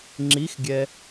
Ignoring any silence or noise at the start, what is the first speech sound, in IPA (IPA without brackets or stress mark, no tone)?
ŋ͡ǁ